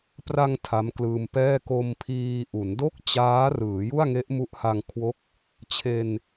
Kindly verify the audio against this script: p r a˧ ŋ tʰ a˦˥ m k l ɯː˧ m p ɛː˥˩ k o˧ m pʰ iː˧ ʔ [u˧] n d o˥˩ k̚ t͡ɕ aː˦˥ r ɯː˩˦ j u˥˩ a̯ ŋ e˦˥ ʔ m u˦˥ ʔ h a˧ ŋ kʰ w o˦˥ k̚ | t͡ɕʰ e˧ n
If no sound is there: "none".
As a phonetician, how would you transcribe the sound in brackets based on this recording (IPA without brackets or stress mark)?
u˩˦